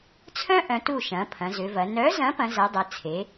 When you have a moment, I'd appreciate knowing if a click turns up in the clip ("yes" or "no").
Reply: no